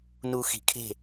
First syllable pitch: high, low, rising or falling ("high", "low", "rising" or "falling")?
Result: low